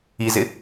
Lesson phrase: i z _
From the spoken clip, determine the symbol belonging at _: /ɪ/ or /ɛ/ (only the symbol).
ɪ